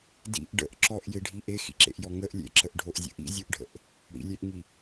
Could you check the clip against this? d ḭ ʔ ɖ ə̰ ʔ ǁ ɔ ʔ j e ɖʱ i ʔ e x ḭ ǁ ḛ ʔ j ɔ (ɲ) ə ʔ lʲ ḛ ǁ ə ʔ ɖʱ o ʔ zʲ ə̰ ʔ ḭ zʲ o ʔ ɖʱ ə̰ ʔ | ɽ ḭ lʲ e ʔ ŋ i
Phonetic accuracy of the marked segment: incorrect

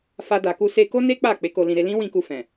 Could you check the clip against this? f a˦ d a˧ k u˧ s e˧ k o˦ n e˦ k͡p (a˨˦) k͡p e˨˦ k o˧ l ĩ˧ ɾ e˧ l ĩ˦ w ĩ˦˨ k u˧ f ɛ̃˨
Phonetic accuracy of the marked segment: incorrect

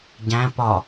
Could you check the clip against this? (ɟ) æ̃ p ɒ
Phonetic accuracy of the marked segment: correct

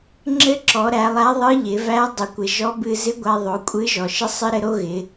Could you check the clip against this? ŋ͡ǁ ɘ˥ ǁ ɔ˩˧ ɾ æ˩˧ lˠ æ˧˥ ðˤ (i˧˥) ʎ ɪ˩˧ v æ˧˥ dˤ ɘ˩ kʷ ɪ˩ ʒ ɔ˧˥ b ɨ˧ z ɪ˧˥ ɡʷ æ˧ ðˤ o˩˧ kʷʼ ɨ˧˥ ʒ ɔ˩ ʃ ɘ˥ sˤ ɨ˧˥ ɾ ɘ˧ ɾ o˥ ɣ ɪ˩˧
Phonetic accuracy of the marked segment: incorrect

